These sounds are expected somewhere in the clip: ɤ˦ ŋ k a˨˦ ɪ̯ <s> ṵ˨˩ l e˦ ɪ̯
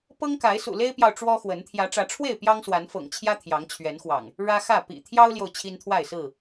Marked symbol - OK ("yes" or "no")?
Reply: yes